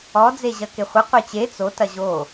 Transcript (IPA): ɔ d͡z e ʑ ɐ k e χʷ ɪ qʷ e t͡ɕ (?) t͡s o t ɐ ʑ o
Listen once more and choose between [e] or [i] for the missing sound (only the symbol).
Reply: e